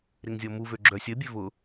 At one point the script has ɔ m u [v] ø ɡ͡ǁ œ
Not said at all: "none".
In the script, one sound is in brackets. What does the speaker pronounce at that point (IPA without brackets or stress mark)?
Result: v